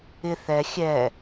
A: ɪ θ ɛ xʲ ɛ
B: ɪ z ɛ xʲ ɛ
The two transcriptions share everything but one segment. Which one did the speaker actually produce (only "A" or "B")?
A